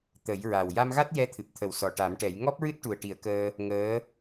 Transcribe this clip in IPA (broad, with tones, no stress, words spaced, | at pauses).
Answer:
t̪ə˨˩˦jɹa˨˩w ja˧mɣa˦˥t̚ jɛ˧t̪ʰɨ˨˩p̚t̪ʰə˨˩w sɔ˨˩ʈa˨˩˦mʈɛ˨˩˦j ŋɔ˦˥p̚ɹɨ˦˥t̚ ʈu˨˩ə̯ʈi˨˩˦ə̯kəː˧ | ŋəː˧˥